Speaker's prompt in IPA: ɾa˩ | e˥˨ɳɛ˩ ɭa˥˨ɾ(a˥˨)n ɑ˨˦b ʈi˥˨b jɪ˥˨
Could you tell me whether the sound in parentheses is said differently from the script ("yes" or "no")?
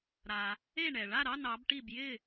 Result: yes